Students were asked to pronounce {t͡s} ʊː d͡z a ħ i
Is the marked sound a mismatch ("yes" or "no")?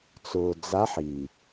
no